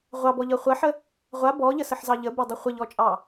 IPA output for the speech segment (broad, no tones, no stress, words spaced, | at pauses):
ʁʷɑbɔʎɤ χʷɐħə | ʁʷa bɔʎəsəħzɑ ʎəbɤdˤɤ χʷəʎɔt͡ʃʼɑ